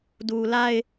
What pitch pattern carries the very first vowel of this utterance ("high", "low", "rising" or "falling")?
low